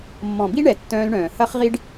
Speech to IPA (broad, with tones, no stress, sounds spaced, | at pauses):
mː ɔ̃˨ b i˦ ɳ ɛ˨ tː œ̃ː˧ l ɳ œ̃ː˨ h ɐ˦ χ ʁ i˦ ɖ